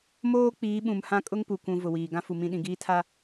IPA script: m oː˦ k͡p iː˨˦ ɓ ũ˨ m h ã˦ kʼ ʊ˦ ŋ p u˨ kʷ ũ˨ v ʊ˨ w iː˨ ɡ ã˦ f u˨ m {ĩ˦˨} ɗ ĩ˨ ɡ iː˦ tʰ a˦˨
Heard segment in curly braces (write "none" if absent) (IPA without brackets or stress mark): ĩ˦˨